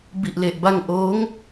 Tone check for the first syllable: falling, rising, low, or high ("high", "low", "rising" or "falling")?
low